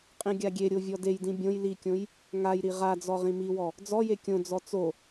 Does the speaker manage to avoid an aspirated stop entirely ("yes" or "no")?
yes